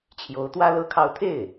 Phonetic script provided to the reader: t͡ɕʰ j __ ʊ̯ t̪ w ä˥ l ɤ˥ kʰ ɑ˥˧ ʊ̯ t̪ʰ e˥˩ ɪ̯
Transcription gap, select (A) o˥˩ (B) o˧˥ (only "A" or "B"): B